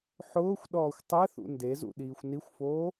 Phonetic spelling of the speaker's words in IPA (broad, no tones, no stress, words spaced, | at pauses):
ħʊːxʷɗɔːxʷ tˤɛθṵ ndezṵ ɗiːxʷnixʷfoː